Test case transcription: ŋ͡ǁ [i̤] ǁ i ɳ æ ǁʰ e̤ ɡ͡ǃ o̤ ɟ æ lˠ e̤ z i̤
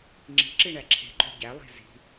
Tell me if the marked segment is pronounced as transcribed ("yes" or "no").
yes